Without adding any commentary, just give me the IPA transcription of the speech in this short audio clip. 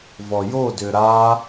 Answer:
v ɔ j o d ʏ ɾ a

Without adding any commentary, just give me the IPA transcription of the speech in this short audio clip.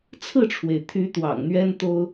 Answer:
t͡sʰ ɹ̩˥˨ ʈ͡ʂʰ w e˩ ɪ̯ t̪ʰ y˨˦ t̪ w ɑ̰˨˩ ŋ n̪ ɥ ɛ˦ n t̪ o˦ ʊ̯

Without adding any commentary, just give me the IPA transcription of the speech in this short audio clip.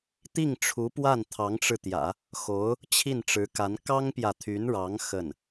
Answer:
t̪ i˥˩ ŋ ʈ͡ʂʰ u˧˥ p w a˥˩ n t̪ʰ ɑ˧˥ ŋ ʈ͡ʂ ɻ̩˧ t̪ j ä̰˨˩˦ | x o˧˥ ʊ̯ | t͡ɕʰ i˥˩ n ʈ͡ʂ ɻ̩˧˥ k a˧˥ n k ɑ˥ ŋ p j ä˨ t̪ʰ y˧˥ n ɻ ɑ˧˥ ŋ x ə˥˩ n

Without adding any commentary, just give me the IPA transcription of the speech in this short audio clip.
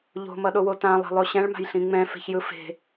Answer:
ʎ o̤ m ʌ ɗ o w o t ã lˠ e̤ lˠ o ɕ ɛ̃ ɭ m a̤ j ɬ ĩ ŋ͡m ɛ̃ f e̤ ç j ɯ f e̤

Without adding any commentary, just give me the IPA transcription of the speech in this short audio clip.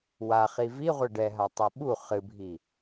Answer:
w a χ i v i ʁʷ ɘ ɖ ɛ ɦ a tˤ ɘ ɓ u χ ɨ bʱ i

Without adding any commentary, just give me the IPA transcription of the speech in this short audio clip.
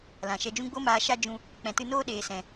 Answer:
l ã˨ ʃ ɛ˧ d͡ʒ ũ˦ ɡ͡b o˦ m aː˧ ʃ a˦ d͡ʒ ũ˧ | k͡p ɛ̃˨ t ɨ˧ n oː˦ ɗ eː˨ s ɛ̃˨

